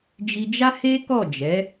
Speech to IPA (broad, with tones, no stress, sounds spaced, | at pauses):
d͡ʒ i˧ d͡ʒ a˦ h e˦ k ɔ˦˨ d͡ʒ ɛ˨˦